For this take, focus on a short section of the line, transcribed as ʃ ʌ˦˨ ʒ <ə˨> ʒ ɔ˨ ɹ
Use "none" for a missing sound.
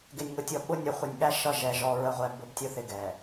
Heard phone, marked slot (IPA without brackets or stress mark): ɛ˨